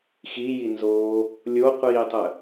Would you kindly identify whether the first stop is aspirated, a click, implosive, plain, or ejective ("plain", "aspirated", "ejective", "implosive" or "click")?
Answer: plain